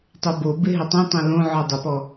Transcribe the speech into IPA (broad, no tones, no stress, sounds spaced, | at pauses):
tˤ o b o b ɪ ɦ ɪ tˤ õ tˤ õ l õ ʕ ɔ dˤ ɪ p ɔ